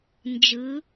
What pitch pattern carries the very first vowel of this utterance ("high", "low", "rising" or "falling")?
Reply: rising